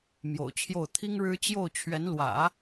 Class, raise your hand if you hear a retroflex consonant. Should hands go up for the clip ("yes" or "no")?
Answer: yes